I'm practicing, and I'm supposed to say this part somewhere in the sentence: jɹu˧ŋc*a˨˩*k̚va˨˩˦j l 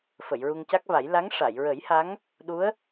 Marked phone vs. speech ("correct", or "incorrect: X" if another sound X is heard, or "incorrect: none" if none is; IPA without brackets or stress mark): incorrect: a˦˥